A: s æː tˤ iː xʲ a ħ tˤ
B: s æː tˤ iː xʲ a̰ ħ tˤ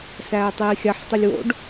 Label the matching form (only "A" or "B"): A